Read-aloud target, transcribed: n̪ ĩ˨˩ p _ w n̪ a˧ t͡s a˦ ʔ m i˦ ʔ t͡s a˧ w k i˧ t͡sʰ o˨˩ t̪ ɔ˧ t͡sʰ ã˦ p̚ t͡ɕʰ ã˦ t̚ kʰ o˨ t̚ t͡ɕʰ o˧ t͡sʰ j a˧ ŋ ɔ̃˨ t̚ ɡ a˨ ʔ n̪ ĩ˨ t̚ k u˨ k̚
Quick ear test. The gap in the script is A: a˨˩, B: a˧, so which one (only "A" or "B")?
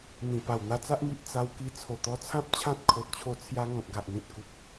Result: A